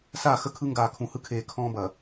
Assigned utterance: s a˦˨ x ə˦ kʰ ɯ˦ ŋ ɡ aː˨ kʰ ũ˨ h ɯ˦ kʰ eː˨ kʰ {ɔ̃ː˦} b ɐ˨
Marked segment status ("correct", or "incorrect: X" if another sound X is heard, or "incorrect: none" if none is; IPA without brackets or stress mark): correct